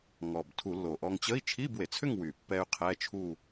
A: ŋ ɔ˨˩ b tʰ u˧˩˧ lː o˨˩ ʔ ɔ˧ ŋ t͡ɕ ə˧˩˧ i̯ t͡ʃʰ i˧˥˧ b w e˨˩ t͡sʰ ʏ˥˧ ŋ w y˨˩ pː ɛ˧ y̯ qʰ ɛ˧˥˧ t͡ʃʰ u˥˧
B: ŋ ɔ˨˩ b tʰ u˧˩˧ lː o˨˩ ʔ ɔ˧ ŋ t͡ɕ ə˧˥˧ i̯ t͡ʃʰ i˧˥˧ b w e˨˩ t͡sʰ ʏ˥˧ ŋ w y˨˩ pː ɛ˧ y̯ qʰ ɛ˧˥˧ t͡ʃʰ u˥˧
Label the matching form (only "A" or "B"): B